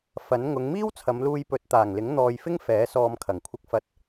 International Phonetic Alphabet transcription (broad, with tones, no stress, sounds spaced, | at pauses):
f ɐ˨˥ n ŋ ʊ˨˧ ŋ m iː˥ w t͡sʰ ɐ˨˧ m l uː˧ j p ɵ˨˥ t̚ t̪ aː˨˩ ŋ l ɪ˨˥ ŋ n̪ ɔː˨ j f ɪ˥ ŋ f ɛː˨˥ s ɔː˧ m kʰ ɐ˨˩ ŋ kʷʰ ɪ˧ k̚ f ɐ˧ t̚